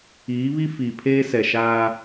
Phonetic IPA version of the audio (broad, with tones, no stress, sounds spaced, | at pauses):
iː˨˦ β i˦ f iː˨ pʰ eː˦ s ɛ˨ ʃ aː˦